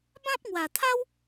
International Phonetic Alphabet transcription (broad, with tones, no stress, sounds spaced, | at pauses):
b ã˦ p̚ ŋ w a˨˩ t̪ʰ a˦ w